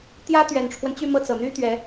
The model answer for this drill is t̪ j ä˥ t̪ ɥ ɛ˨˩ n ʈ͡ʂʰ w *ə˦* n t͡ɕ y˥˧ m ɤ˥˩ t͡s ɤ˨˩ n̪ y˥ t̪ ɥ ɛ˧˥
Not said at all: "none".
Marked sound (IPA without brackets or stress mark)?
ə˦